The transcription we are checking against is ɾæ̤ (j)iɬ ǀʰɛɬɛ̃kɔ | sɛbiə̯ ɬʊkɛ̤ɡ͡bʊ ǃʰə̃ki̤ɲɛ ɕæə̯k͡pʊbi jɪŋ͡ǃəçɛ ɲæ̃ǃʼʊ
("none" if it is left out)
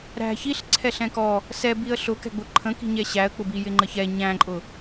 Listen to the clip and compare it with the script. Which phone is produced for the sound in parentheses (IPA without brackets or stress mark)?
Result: ç